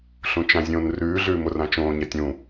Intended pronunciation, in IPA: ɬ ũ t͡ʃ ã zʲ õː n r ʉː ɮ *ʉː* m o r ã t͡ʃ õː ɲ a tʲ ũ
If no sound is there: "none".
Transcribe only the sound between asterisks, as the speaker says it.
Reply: ʉː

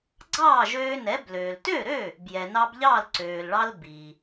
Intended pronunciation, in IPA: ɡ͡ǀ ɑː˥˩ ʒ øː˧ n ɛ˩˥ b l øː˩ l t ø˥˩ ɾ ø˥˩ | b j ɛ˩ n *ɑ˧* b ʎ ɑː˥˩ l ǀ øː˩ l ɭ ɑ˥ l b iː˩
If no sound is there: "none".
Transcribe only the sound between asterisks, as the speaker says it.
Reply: ɑ˧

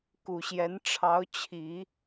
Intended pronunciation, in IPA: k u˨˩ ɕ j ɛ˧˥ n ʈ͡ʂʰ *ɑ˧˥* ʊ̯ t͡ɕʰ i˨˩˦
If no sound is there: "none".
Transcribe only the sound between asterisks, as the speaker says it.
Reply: ɑ˧˥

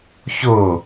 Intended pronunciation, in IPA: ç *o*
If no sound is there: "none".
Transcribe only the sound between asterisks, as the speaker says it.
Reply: o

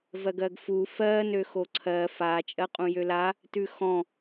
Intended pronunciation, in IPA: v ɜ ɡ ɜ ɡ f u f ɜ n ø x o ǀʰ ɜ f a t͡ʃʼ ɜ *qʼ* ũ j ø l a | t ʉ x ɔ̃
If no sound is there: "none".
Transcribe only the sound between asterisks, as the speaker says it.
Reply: qʼ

